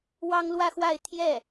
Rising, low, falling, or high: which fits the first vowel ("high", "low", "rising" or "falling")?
high